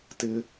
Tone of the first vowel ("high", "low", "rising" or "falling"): high